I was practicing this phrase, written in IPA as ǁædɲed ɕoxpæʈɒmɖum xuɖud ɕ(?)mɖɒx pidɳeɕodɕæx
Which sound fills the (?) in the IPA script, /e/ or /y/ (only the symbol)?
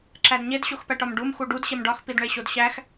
e